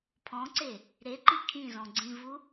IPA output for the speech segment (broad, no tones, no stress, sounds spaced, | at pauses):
pʰ ɔ̃ ǀ e | ɾ e ǃ i kʰ ĩ z ɔ̃ ɡ͡ǀ ĩ v u